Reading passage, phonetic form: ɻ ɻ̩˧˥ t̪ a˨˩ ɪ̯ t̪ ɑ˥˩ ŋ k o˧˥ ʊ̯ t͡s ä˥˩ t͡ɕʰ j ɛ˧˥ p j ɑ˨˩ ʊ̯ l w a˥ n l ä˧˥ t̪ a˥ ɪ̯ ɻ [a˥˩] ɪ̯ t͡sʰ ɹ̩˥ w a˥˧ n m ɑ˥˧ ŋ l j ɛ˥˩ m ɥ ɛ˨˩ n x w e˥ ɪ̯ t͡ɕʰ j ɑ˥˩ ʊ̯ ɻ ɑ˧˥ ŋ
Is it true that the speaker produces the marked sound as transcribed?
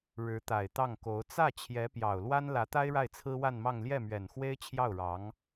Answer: yes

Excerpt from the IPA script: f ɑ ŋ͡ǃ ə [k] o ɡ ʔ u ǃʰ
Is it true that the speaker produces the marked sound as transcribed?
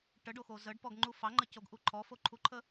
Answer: no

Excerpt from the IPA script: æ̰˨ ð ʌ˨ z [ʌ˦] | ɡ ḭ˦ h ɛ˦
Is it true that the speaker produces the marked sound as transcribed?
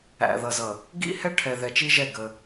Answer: no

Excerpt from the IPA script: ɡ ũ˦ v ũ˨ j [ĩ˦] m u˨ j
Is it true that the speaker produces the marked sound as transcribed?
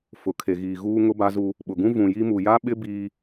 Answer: no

